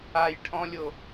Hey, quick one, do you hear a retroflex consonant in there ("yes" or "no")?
yes